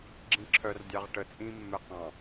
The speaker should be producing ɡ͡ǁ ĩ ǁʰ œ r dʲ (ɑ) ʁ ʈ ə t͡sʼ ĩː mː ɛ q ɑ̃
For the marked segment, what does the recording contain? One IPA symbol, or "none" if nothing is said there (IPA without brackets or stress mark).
ɑ